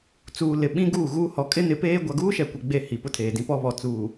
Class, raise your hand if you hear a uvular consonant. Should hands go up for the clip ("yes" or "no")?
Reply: no